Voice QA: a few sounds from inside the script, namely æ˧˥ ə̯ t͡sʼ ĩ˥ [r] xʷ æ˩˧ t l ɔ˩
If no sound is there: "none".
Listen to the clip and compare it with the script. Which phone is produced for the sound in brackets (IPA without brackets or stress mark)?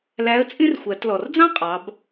r